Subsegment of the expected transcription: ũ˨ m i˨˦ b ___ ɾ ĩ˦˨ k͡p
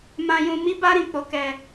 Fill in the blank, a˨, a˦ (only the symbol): a˦